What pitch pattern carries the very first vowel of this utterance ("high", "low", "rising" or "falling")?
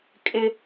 high